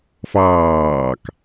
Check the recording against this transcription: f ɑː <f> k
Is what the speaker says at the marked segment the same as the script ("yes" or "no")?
no